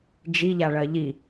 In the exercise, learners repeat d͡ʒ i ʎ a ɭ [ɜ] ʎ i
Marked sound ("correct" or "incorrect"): correct